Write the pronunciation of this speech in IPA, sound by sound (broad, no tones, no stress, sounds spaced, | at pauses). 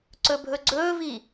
ǀ ɵ bʱ ɵ ɡ͡ǀ ɵː v i